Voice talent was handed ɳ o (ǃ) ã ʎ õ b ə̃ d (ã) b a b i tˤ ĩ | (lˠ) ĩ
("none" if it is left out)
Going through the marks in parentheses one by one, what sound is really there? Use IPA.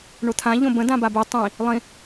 t̪ʰ, ã, lˠ

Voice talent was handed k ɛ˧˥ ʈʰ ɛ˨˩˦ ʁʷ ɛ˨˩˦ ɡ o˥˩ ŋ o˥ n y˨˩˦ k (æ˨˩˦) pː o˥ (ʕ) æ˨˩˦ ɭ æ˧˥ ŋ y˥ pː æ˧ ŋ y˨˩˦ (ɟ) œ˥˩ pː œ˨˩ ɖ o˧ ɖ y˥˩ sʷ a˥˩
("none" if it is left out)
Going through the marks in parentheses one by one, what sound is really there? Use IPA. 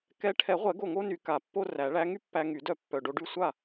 a˨˩˦, r, d

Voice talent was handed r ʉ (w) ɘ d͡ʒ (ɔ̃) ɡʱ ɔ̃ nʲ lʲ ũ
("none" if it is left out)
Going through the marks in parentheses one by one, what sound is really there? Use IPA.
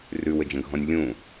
w, ə̃

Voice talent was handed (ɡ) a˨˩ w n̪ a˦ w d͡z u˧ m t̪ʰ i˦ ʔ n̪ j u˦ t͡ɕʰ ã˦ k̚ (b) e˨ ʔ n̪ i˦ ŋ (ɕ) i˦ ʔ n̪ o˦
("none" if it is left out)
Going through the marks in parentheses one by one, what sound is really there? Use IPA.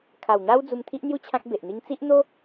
kʰ, b, t͡s

